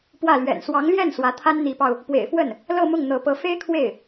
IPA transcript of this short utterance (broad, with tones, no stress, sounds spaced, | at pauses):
p w ä˥˩ l ɥ ɛ̰˨˩ n s w ɑ˧˥ ŋ l j ɛ˥˩ n s w ä˧˥ t̪ʰ a˥ n n̪ i˧˥ p ɑ˧ ʊ̯ | p w ḛ˨˩ ɪ̯ f w ə˥˩ n | l ɤ˥˧ m ʊ˥˩ ŋ n̪ ɤ˧˥ p ɤ˧˥ f e˥ ɪ̯ kʰ w e˥˩ ɪ̯